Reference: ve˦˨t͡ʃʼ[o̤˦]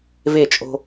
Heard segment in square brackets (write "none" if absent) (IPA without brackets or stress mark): o̤˦